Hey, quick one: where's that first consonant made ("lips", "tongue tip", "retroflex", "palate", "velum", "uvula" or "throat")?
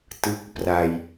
tongue tip